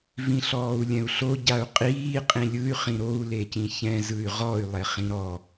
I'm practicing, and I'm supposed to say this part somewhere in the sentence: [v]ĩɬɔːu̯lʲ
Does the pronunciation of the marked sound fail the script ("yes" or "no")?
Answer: no